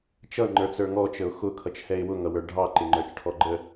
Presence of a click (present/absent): present